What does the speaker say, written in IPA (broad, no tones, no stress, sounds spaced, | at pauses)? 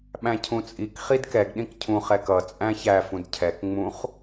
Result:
ɓ æ̃ cʰ ũ t͡sʼ i k χ i d k ɛ ɡ ɗ ĩ k cʰ ũ χ ɛ k ʌ t͡sʼ æ̃ ç æ f ũ d cʰ ɛ k ŋ͡m ũ χ